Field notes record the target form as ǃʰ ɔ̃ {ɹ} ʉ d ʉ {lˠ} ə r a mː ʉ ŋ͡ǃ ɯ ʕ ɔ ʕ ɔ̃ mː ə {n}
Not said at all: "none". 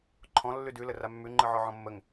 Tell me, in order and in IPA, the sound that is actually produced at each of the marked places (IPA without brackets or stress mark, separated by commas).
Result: lː, l, ŋ